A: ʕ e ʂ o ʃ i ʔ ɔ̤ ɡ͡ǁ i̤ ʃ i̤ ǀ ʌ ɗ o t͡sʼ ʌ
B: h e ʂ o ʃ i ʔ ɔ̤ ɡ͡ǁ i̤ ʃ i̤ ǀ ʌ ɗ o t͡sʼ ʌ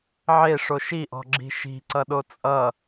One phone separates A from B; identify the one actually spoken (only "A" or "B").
A